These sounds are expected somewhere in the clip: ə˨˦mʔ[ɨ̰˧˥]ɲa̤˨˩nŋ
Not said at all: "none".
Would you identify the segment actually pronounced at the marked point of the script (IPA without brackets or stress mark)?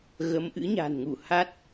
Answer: ɨ̰˧˥